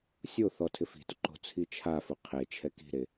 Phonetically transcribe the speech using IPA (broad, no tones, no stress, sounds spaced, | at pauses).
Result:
sʲ o θ ɔ tʰ ɪ f i̤ t ʊ ǃ o̤ t͡sʰ i t͡ʃʰ a f ʊ qʰ e t͡ʃʰ ɛ k i̤ ɾ e